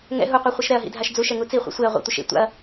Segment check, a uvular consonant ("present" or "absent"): present